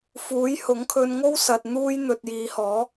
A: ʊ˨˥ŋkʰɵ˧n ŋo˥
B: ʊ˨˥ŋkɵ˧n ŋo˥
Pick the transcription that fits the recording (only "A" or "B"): A